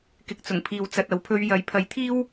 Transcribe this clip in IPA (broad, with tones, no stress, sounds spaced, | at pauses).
k ɪ˨ k̚ t͡s ʊ˨˩ ŋ pʰ iː˨ w t͡s ɐ˨ t̚ ɐ˨˧ w pʰ ɵ˧ ɥ j ɐ˨˥ j pʰ ɐ˨˥ j t̪ʰ iː˥ w